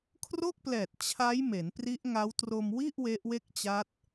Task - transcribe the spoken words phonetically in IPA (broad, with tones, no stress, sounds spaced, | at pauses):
kʰ r o˥˩ k̚ p l ɛː˨˩ t̚ t͡ɕʰ a˦˥ j m e˩˦ n p r i˦˥ ʔ ŋ a˦˥ w t r o˧ m w i˥˩ ʔ w e˦˥ ʔ w e˥˩ k̚ t͡ɕ a˦˥ t̚